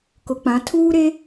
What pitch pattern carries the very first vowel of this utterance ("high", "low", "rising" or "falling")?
low